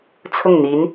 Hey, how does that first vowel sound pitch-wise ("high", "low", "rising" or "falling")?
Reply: falling